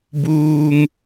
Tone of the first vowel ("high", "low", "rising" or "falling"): low